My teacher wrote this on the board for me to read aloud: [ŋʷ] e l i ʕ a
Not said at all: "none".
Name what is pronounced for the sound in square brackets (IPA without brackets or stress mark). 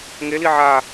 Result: ŋ